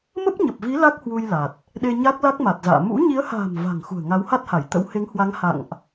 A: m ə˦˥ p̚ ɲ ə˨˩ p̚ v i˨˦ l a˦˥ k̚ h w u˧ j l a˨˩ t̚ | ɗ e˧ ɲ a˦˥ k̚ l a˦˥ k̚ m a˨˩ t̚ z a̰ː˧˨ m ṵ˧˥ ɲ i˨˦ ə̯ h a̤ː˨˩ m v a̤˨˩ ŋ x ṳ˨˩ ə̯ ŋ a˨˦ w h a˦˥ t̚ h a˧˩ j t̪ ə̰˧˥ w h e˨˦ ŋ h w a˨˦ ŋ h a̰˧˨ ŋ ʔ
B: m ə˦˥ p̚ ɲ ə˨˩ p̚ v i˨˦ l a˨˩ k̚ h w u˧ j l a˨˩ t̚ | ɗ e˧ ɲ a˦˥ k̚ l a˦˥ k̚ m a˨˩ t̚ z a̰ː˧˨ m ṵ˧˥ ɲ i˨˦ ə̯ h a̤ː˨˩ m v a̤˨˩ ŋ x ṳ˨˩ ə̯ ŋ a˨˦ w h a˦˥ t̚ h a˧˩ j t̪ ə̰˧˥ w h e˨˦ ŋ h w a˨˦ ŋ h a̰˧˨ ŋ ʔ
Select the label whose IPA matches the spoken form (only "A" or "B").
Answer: A